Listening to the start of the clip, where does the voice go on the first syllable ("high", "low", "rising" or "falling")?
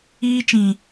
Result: high